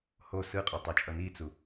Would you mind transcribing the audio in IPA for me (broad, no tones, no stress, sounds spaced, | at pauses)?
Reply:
h o s ɯ qʼ o tˤ ɛ t͡ʃʼ ʌ n i t͡s u